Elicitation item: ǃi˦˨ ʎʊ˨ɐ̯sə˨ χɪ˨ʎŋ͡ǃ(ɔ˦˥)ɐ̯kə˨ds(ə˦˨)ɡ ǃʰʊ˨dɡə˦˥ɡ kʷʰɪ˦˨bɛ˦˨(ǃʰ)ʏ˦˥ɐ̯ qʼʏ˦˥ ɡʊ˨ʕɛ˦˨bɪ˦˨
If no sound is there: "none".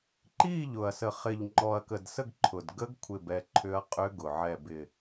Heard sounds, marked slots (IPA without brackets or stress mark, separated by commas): ɔ˨, ə˦˨, ǃʰ